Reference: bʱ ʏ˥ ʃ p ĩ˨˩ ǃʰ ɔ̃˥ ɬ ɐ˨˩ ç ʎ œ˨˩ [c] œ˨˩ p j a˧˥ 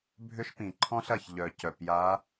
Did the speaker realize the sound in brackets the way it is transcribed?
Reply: yes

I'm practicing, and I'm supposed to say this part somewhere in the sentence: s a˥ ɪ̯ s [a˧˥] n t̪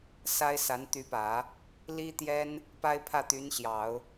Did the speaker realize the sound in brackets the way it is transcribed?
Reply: yes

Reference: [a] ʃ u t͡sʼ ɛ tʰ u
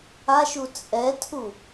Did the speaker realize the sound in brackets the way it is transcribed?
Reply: yes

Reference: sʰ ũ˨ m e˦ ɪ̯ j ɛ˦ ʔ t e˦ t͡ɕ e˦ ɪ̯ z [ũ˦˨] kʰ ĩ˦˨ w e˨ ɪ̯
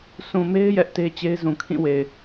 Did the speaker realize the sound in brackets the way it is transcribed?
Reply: no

